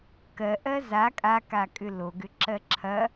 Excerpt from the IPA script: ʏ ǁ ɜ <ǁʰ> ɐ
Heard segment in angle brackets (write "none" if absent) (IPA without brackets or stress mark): ǁʰ